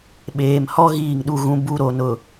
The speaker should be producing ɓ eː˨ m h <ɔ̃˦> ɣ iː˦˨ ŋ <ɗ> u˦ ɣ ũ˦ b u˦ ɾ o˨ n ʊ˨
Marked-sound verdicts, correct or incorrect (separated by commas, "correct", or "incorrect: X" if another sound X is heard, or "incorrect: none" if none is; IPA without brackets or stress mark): incorrect: ɔ˦, correct